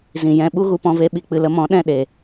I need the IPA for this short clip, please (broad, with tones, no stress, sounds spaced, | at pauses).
z ĩ˨ j ɛ̃˧ ɓ u˦ ɣ u˧ p ɔ̃˧ v e˦ ɓ i˦ k͡p ɨ˧ l ə˧ m ɔ̃˨˦ ɗ ɛ̃˦˨ ɗ e˨